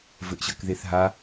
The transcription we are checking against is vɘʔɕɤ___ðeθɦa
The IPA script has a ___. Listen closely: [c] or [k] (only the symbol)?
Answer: k